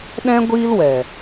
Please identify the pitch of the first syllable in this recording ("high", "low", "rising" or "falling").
high